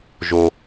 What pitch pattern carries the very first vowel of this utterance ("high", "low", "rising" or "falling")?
low